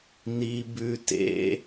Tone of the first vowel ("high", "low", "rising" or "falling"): low